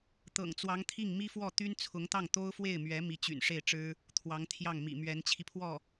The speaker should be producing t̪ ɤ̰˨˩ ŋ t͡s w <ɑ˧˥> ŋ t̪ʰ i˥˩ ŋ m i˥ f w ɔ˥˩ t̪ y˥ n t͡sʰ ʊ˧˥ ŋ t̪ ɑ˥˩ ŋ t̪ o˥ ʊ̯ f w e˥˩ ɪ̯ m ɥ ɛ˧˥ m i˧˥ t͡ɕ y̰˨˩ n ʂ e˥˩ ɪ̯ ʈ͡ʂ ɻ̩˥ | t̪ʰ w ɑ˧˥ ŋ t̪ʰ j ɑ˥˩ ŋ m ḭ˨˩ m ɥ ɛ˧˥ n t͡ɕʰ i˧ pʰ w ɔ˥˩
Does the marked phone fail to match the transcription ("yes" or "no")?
no